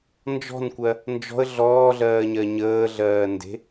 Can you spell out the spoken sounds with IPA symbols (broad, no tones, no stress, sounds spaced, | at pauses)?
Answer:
n d͡ʒ ɔ̤ n kʷ ɜ | n d͡ʒ ɔ̤ ə̯ ɮ ɔː ɮ ɜː ɲ ɜ ɲ əː ɮ ɜː n d e̤